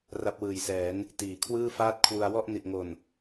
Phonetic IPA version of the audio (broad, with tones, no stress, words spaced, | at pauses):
ra˦˥p̚wɯː˨˩jsɛː˩˦n | tiː˩˦kʰwɯː˥˩faː˥˩t̚ kʰwu˧a̯ wɔ˥˩ʔ ni˨˩ʔŋo˨˩n